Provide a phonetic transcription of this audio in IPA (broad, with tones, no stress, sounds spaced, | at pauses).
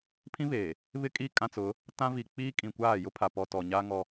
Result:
pʰ ĩ˦ β e˨ | β ɪ˦ kʼ i˦˨ kʼ ã˦ t͡s ʊ˨˦ | t ã˦ v i˨ k͡p iː˦ kʼ ĩ˨ kʷ aː˦˨ j ʊ˦ pʰ a˨ p ɔ˨ t ɔ˨ ɲ aː˦ ŋ ɔ˦